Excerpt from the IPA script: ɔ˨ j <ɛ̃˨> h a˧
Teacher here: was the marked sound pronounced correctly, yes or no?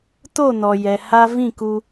no